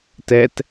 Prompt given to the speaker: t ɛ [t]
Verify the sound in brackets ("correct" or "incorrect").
correct